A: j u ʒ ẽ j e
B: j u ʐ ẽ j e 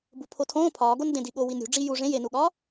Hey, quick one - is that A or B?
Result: B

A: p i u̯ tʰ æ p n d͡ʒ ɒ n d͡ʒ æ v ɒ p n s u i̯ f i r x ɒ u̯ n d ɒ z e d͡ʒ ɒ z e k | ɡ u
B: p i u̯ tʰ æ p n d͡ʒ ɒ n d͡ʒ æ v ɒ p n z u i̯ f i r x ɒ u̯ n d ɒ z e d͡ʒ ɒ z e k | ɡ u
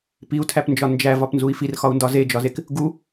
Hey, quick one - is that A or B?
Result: B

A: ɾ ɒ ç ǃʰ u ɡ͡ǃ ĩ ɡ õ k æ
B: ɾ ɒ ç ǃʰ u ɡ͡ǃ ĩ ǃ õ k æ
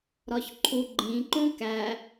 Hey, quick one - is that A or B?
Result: B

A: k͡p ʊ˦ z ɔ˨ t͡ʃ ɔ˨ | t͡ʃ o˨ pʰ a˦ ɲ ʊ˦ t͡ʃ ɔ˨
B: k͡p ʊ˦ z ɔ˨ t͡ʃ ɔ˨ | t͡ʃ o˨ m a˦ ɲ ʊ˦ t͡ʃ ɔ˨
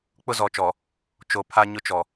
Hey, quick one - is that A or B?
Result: A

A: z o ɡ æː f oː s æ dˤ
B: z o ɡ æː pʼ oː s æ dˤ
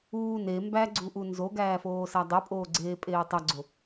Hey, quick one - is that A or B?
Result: A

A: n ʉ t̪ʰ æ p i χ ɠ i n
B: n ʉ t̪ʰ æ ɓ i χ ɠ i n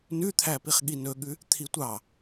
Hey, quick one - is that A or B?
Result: A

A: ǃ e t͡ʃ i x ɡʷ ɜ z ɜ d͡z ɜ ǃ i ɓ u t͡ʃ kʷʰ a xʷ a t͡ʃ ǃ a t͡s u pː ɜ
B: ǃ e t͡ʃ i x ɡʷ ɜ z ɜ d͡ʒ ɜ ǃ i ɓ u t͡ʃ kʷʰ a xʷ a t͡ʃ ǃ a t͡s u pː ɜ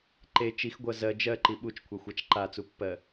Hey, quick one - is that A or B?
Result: B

